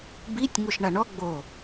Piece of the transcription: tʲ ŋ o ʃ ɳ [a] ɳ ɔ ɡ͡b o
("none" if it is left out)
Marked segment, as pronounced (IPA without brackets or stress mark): a